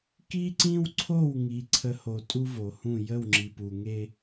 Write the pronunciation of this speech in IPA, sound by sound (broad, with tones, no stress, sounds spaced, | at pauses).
k i˦ ǀ ĩ˦ w ǀʰ o˦˨ w ŋ i˨ ǀʰ ə˨˦ h o˨ tʼ u˦ v o˨ h ũ˦˨ j ə˦˨ w ŋ͡ǁ i˨ p u˨ ŋ e˦